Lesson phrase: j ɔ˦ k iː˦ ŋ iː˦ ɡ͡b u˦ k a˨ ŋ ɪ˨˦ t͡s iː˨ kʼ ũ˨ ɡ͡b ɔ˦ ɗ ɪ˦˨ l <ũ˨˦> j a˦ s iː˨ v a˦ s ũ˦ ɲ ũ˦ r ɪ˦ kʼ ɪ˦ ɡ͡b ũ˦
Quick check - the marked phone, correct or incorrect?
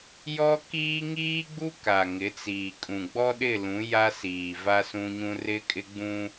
correct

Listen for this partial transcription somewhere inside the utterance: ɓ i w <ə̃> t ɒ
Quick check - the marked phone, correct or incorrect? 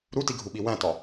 incorrect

